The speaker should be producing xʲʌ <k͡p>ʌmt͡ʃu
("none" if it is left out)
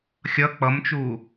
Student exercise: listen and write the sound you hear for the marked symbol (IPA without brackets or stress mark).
k͡p